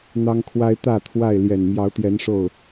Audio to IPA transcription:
n̪ ɑ˦ ŋ kʰ w a˦ ɪ̯ t̪ ä˥˨ t̪ʰ w a˥˨ ɪ̯ l j ɛ˨˩ n m j ɑ˨˦ ʊ̯ t̪ j ɛ˨˦ n ʂ o˥˨ ʊ̯

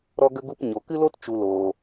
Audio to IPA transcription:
ɾ ɔ˦ ɡ ə˦ ɡ u˧ p ɲ o˨ k ɨ˦ l o˦ t t͡ʃ u˨ l oː˨

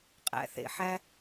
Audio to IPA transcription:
qʼ æ̰˨ θ ḛ˨ ħ æ˧

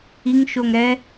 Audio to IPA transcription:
i ŋ ʃ o ŋ ɾ ɛ

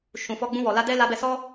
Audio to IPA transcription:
ʃ ũ˨ f ɔ˧ ɡ͡b ũ˧ w ɔ˨ l a˧ d ɛ˦ l a˧ b ɛ˧ s ɔ˦

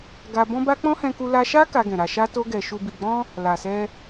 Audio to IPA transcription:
ɡ a˧ b ɔ̃˦ b a˦ k͡p ɔ̃˦ h ɛ̃˧ k u˧ l a˧ ʃ a˦ k a˧ ɡ ɛ̃˨ ɾ a˨ ʃ a˧ t o˧ ɡ ɛ˨ ʃ u˨ b i˨ ɡ͡b ɔ̃˧ | l a˨ s ɛ˧

